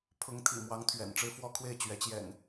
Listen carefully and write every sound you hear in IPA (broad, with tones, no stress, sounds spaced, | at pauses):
pʰ ʊ˨˦ ŋ t̪ʰ ḭ˨˩ m w ɑ˨˦ ŋ t̪ʰ ɥ ɛ̰˨˩ n ʈ͡ʂ ɻ̩˦ f w ɔ˦ kʰ w e˥˨ ɪ̯ t͡ɕ ɥ ɛ˨˦ t͡ɕ j ɛ̰˨˩ n